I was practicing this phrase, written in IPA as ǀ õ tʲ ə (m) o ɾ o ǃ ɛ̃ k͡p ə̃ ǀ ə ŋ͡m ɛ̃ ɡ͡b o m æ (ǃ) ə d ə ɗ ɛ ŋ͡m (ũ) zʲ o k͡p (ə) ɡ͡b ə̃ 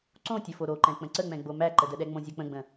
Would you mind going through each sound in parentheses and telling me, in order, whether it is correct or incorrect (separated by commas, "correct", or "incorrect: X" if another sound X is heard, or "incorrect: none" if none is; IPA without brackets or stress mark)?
incorrect: f, correct, incorrect: õ, incorrect: ə̃